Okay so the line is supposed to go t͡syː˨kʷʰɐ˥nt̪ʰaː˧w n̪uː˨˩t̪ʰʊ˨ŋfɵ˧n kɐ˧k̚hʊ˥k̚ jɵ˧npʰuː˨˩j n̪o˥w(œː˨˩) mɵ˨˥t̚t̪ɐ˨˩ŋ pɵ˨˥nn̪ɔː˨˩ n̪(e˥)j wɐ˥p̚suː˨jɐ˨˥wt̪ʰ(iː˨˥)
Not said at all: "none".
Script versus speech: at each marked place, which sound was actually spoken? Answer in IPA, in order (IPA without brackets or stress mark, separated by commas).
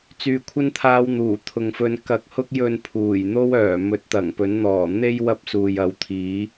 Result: œː˨˩, e˥, iː˨˥